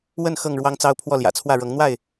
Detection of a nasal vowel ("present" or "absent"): absent